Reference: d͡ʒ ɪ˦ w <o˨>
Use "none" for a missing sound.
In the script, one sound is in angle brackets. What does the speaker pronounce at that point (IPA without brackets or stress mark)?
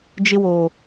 o˨